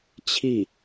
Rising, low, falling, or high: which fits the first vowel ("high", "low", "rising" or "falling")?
falling